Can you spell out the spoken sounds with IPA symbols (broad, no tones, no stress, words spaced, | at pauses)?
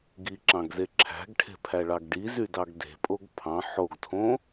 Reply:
ɡiǁɑ̃ɡze ǁʰæ̤ɡʈʰe̤pʰæɭɑɡ ɖizydɑɡ de̤pʼoɡ pʰɑ̃ ħoɡtʰõ